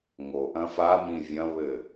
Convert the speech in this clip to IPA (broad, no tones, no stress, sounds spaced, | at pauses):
ŋ o ʔ ɐ̃ f a m ĩ vʲ ɐ̃ β ɘ